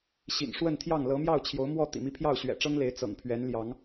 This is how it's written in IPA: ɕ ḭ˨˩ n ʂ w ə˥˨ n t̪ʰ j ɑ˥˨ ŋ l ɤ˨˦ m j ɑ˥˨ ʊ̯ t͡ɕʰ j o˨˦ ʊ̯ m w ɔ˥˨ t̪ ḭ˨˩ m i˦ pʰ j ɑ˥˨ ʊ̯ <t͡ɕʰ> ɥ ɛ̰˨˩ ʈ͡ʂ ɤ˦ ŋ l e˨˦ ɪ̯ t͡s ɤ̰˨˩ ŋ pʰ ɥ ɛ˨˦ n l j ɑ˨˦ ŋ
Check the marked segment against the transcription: incorrect: ɕ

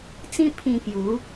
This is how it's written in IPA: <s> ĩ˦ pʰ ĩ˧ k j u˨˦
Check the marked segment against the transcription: incorrect: t͡s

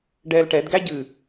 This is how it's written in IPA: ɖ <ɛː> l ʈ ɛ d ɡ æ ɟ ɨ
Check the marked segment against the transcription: correct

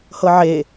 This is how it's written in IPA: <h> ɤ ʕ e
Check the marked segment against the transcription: correct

